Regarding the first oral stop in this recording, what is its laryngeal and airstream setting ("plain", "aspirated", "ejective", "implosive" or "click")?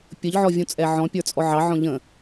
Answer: plain